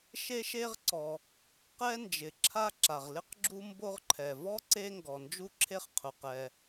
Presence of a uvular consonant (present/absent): present